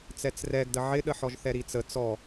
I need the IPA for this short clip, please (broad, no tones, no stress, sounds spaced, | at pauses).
t͡s ɛ t͡s r ɛ ɡ d ə ʕ ɪ ɗ ə ħ ɔ ʒ θ ɛ ɾ i t͡s ə t͡s ɔ